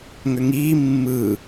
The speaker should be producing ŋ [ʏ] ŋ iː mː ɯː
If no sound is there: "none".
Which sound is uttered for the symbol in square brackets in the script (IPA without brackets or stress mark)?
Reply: ʏ